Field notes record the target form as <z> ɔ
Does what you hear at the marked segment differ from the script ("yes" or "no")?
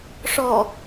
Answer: yes